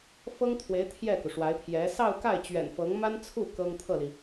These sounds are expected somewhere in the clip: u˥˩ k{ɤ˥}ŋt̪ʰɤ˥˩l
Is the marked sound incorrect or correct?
correct